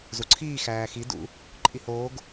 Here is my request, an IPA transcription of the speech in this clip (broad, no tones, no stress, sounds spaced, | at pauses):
z u ǀʰ iː x æː x i d ṵ | ǃʼ i h oː ɡ